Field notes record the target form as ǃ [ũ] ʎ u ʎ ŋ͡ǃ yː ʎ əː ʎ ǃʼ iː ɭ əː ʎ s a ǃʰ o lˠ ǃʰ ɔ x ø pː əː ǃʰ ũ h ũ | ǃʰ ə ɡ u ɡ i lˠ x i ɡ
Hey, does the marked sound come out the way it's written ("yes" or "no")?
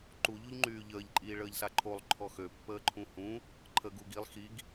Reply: no